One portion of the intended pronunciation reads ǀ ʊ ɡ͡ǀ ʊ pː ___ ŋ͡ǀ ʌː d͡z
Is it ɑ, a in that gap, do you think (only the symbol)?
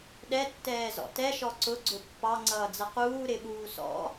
ɑ